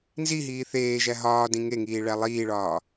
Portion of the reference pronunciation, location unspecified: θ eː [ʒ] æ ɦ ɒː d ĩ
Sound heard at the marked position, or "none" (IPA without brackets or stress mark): ʒ